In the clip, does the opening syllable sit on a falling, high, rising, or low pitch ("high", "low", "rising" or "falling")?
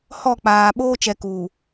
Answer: falling